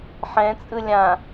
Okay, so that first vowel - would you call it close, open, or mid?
mid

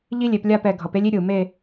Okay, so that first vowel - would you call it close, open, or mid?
close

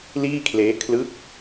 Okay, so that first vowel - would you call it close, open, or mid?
close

